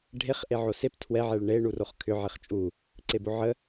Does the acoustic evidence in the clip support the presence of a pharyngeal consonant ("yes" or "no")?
yes